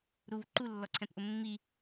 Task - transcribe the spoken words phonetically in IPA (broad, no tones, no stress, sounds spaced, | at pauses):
ɾ u v ǃ u lː ɔ ǀʰ ɛ̃ p ʔ ʊ mː i